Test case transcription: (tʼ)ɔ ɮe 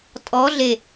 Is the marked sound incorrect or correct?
correct